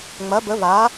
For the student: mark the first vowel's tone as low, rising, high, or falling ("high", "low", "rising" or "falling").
rising